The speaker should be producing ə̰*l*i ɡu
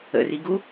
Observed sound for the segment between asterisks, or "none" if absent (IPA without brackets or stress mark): r